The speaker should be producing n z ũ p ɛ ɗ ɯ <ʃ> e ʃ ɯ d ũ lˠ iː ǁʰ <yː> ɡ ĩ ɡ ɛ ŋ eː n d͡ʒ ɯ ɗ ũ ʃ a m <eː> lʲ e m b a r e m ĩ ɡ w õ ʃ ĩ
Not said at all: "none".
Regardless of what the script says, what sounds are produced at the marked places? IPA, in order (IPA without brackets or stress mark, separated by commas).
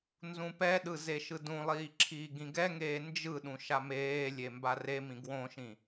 z, iː, eː